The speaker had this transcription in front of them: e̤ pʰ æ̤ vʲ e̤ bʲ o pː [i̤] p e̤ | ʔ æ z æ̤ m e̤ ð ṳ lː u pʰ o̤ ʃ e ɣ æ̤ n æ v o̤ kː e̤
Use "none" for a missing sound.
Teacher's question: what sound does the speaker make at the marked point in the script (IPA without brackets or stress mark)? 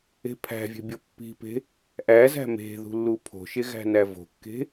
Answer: i̤